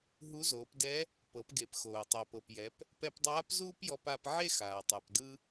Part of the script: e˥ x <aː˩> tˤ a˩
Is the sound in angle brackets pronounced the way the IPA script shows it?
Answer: yes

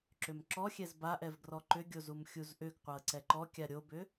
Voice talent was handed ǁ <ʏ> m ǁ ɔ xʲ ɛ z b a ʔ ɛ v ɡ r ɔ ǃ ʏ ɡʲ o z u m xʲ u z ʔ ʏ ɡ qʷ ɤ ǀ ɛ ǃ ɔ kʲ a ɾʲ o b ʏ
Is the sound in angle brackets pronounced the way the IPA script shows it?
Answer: yes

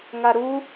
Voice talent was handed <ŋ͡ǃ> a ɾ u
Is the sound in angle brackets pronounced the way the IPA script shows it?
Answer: no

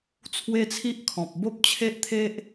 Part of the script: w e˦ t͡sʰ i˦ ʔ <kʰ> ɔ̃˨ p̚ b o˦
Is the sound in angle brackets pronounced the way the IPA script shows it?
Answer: yes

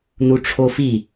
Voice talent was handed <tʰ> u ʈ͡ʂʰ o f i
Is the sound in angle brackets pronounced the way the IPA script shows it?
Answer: no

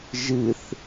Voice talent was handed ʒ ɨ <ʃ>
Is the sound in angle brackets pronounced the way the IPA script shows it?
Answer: no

